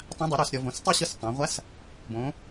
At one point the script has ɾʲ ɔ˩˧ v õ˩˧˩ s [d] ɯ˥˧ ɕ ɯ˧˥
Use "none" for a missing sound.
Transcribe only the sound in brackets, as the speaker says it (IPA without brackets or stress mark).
tˤ